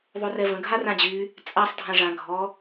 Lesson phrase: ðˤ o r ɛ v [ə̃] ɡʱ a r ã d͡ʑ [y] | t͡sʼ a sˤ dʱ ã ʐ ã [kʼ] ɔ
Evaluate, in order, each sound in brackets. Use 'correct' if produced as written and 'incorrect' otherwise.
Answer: correct, correct, incorrect

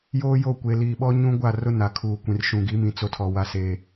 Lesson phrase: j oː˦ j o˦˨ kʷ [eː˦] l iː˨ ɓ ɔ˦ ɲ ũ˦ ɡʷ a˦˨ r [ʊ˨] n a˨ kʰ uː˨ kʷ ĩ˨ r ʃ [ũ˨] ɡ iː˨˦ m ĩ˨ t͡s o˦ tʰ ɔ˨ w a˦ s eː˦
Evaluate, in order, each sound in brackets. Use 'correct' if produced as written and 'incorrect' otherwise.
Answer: incorrect, incorrect, correct

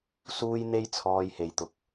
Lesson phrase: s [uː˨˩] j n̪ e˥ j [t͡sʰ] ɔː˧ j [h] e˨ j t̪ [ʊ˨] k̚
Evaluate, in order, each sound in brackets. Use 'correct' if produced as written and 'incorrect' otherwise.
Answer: incorrect, correct, correct, correct

